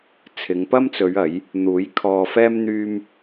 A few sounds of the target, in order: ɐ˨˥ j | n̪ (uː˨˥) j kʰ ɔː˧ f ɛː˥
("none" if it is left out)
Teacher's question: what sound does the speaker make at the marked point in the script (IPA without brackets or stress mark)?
uː˨˥